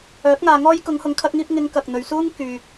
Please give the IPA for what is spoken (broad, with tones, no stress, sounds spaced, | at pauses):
œː˨˥ k̚ ŋ aː˧ ŋ ɔː˥ j k ʊ˨˧ ŋ h ʊ˨˧ ŋ kʰ ɐ˧ k̚ ŋ iː˧ p̚ ŋ ɪ˨˧ ŋ k ɐ˨ k̚ n̪ ɵ˨ ɥ s uː˥ ŋ k yː˨ k̚